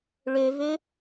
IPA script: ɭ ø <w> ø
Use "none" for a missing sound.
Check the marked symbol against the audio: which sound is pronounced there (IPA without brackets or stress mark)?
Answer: v